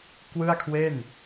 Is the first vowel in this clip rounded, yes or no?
no